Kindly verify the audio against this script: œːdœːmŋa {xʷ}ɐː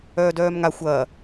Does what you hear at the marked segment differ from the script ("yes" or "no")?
no